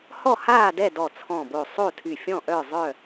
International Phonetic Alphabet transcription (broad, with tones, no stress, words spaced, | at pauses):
hɔ˥˨haː˥˨ dɛ˥˨ dɔ˧˩t͡sʰɔ̃˧˩bo˧˩sˤo˥˨ tʰy˧˩fʲɔ̃˥˨ʔœ˥˨zˤœ˥˨